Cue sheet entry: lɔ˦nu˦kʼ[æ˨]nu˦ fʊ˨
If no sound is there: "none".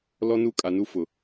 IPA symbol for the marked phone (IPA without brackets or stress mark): a˨